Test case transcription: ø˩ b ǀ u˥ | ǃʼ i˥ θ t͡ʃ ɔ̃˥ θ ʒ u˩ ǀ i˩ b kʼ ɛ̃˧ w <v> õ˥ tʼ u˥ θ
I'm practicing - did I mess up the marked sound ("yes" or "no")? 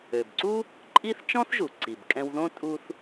yes